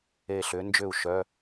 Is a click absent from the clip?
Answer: yes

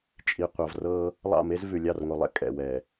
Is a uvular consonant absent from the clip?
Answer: no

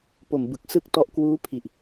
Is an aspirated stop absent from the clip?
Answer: no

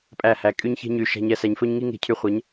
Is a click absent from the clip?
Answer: yes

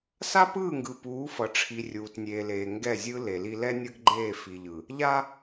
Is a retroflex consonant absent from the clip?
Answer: no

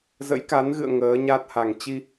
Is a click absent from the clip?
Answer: yes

